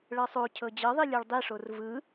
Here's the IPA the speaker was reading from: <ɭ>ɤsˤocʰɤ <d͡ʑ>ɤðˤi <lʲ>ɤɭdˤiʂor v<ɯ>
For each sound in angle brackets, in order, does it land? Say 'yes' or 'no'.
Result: yes, yes, yes, yes

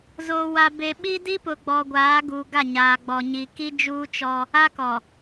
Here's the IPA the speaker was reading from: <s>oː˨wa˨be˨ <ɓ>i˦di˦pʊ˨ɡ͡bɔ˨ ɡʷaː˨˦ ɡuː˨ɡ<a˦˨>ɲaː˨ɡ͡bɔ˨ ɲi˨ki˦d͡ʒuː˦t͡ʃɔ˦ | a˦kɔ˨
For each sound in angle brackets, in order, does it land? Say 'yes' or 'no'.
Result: no, yes, yes

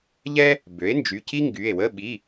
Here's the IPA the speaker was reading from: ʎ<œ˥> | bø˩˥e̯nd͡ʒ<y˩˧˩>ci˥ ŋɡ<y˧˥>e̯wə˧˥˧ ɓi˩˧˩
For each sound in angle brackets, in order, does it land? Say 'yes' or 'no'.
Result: no, yes, no

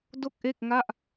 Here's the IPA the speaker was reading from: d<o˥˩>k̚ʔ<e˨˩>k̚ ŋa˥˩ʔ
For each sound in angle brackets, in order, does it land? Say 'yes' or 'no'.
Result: yes, no

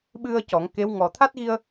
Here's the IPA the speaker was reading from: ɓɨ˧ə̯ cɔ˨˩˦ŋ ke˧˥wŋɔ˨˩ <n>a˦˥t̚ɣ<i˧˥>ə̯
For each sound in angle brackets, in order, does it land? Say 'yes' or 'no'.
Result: no, no

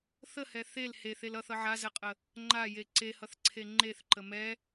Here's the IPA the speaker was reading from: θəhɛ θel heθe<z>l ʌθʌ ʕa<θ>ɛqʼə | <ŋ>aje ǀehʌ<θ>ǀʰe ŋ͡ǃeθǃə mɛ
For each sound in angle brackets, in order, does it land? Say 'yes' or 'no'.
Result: no, no, no, yes

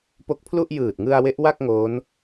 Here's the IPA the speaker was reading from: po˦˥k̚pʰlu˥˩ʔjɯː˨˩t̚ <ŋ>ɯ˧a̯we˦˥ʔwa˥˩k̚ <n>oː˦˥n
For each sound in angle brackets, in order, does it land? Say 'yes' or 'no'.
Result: yes, no

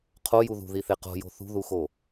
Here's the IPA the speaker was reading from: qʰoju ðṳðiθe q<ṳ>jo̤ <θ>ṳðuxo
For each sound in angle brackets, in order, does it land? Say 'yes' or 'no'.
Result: no, yes

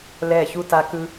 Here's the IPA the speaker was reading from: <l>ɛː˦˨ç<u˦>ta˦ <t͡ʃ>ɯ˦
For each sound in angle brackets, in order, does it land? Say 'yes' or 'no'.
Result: yes, yes, no

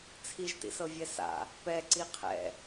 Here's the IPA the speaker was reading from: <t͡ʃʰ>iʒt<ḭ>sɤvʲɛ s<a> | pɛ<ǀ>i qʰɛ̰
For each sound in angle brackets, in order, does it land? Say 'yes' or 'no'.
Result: no, yes, no, yes

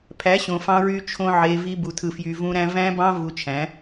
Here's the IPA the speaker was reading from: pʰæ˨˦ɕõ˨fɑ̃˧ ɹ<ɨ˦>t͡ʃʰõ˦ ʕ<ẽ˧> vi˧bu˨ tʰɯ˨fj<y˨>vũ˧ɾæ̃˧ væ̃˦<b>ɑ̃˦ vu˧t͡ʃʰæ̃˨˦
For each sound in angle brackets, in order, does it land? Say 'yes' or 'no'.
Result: no, no, yes, yes

